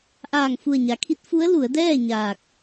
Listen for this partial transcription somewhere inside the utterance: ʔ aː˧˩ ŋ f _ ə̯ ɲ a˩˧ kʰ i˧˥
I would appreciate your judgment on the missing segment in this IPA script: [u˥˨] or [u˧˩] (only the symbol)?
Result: u˧˩